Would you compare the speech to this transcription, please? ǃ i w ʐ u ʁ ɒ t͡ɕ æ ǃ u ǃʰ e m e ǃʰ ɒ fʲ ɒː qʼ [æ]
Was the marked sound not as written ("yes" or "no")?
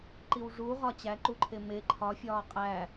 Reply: no